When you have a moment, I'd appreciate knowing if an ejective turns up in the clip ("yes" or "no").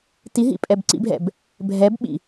yes